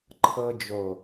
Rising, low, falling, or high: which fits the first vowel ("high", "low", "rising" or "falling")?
high